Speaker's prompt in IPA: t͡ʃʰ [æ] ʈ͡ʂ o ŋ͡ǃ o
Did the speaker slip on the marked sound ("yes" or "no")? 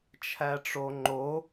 no